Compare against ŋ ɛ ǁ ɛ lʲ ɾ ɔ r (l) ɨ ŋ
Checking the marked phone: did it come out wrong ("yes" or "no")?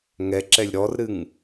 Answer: yes